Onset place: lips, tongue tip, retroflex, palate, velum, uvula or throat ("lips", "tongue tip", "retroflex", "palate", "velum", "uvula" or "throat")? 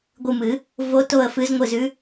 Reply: velum